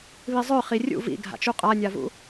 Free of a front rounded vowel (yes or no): no